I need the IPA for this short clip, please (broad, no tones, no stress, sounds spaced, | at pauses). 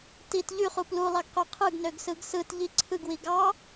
t i t ʎ y χ u p l u lˠ ɑ ɡ q ø qʰ ɯ ɡ n ø ɡ s ɯ ɡ s ɯ t ʎ i ǀʰ ɯ ɡ w i ɡ ɑ